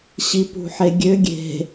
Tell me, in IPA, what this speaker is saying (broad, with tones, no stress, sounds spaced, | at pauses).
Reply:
ɕ i˨ p ṳ˨ ħ e˨ ɡʲ ø˨˦ ɡʲ e̤˨